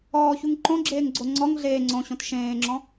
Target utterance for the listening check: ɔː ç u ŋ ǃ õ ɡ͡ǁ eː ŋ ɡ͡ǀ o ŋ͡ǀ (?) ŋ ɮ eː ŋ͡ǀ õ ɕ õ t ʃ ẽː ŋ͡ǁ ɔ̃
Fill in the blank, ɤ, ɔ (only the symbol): ɔ